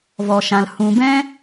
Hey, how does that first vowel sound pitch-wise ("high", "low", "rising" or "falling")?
low